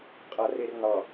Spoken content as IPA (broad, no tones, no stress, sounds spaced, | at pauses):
qʼ a r e r n ɑ